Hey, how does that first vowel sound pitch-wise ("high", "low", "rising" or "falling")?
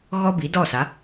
high